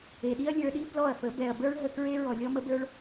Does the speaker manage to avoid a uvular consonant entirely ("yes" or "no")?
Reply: yes